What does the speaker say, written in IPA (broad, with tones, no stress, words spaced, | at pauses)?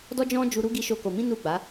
dɔ˦d͡ʒɔ̃˦d͡ʒu˧ ɾu˦ ɡi˦ʃo˦ko˧ mĩ˦nu˦˨ɡ͡ba˨˦